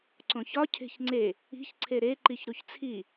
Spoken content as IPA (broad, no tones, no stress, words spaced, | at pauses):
ǀõçɒ cʰe̤çŋ͡ǀe | i̤çǀʰe ɾe ǃiçɾuçt͡sʰi